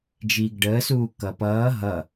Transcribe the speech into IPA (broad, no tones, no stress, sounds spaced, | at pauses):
d͡ʒ iː ɡ ɖ əː s uː k ʌ p ʌː ɦ ʌ